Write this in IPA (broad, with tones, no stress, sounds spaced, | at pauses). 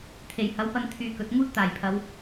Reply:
t̪ʰ e˨˩ j h ɐ˨˥ w p ɐ˧ n t̪ʰ yː˧ k ɵ˨˥ t̚ ŋ uː˥ t̚ t̪ aː˨˩ j pʰ ɐ˨˧ w